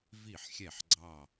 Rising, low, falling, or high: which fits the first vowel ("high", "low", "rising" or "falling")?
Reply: falling